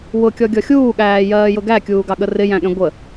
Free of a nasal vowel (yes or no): no